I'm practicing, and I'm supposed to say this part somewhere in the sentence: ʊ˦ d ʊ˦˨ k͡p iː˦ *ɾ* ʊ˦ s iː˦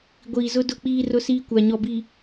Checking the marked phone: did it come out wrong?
yes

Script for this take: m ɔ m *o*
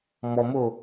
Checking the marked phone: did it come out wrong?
no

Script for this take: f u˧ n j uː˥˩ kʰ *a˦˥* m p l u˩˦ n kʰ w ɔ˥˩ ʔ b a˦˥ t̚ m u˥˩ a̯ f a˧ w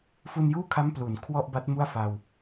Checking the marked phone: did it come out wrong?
no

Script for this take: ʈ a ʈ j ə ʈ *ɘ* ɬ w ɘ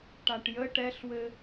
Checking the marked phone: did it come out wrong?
yes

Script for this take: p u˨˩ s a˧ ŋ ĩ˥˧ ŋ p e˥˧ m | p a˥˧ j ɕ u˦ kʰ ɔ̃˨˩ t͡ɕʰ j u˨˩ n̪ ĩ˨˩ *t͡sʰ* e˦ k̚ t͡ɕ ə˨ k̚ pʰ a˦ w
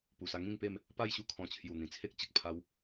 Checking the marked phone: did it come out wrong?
no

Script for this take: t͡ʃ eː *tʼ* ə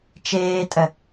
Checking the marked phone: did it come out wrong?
no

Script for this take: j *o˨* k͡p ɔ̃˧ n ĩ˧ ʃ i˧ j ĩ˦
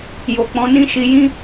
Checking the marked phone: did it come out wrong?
no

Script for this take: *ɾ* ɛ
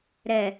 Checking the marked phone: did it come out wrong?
no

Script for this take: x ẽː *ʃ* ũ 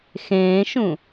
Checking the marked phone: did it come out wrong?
no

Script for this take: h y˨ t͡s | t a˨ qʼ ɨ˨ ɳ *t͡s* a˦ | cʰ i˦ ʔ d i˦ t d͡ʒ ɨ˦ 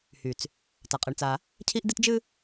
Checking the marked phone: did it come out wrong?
no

